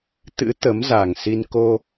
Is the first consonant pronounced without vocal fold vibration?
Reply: yes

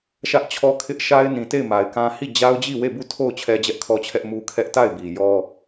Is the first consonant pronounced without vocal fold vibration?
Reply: yes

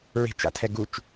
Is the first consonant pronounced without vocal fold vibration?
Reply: no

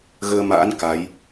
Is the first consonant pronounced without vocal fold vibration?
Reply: no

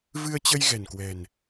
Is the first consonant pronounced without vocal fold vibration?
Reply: no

